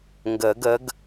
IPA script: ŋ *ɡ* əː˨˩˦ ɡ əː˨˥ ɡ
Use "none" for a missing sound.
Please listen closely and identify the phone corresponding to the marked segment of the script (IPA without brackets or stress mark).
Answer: ɡ